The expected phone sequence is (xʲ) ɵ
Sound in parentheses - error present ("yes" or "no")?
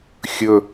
no